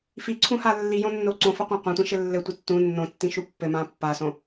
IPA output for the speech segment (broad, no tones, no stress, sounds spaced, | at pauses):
f i ǀʰ ũ h a lː i j õ nː o ǀ õ f ɘ qʷ ã qʷ ã tʷ ĩ ʃ ɘ lː ɘ tʷ i tː ũ nː õ tː ĩ ʃ u pː ɘ m ã pː a s õ